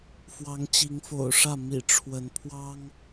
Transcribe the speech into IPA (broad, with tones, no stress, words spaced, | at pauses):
fwɑ˨˦ŋt͡ɕi˨˦ŋfo̰˨˩ʊ̯ʂä˥˨ mḭ˨˩ ʈ͡ʂʰwə˨˦n pʰwɑ˦ŋ